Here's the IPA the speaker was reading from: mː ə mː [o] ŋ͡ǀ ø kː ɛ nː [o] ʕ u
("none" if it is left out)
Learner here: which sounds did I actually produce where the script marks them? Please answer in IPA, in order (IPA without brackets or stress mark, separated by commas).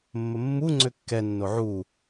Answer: u, o